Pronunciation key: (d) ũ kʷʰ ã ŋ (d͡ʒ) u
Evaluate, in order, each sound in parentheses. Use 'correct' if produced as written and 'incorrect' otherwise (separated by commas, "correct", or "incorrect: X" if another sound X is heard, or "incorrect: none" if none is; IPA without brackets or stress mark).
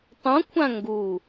incorrect: tˤ, incorrect: ɡ